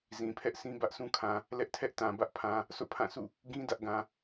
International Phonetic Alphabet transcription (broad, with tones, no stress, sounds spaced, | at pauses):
z ĩ˨ pʰ ɛ˦ ʔ sʰ ĩ˦ b ä˦ ʔ sʰ ũ˦ kʰ ã˨ | l ɛ˦ ʔ tʰ ɛ˦ ʔ t ã˨ b ä˦ ʔ pʰ ã˨ | sʰ o̰˦˨ pʰ ã˦˨ sʰ ṵ˦˨ | ɡ ĩ˦ d ä˦ ʔ ɡ ã˨